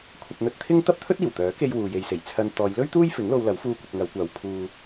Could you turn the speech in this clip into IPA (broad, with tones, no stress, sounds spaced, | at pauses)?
kʷʰ ɐ˧ p̚ n̪ ɵ˧ t̚ t̪ʰ ɪ˥ ŋ t̪ ɐ˥ p̚ t̪ʰ ɵ˥ t̚ iː˨˩ w t̪ œː˨˥ k e˧ j w uː˨ j e˨ j s e˨˩ j t͡sʰ ɐ˧ n t̪ ɔː˨˧ j l ɵ˥ ɥ t̪ uː˥ j f ɪ˨˥ ŋ l o˧ w l ɐ˨˥ w f uː˧ kʷ ɪ˨ k̚ ŋ ɐ˨˧ w kʷ aː˨˧ w pʰ uː˧